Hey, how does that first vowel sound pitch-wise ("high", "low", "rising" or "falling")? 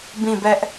falling